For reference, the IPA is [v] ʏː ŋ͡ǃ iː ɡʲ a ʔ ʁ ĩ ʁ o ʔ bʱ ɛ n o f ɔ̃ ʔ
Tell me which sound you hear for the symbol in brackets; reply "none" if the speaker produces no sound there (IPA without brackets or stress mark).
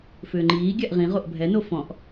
f